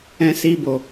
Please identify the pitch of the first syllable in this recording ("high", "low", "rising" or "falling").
high